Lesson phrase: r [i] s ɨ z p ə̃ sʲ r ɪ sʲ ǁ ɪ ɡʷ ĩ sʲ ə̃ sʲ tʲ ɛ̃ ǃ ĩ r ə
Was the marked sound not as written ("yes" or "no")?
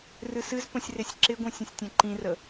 yes